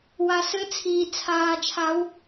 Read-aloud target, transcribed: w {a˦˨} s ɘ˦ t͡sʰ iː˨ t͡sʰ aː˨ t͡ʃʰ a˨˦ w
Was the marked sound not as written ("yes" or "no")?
yes